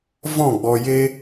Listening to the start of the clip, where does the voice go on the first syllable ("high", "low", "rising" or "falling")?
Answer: falling